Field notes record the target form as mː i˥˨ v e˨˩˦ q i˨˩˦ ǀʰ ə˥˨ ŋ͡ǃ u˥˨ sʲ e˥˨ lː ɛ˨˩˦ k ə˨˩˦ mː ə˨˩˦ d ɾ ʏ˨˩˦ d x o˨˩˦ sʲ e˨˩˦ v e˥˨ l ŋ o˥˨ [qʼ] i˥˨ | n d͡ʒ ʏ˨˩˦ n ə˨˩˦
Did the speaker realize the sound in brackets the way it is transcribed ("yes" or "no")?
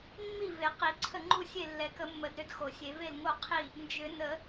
no